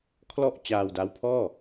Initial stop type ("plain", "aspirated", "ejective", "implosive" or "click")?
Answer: aspirated